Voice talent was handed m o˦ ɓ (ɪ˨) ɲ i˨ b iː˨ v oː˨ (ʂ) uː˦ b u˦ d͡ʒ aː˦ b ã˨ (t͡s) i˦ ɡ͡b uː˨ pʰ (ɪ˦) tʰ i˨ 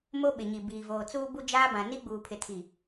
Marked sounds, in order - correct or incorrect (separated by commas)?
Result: correct, incorrect, incorrect, incorrect